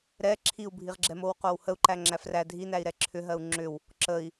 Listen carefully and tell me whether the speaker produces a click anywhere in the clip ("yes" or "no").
yes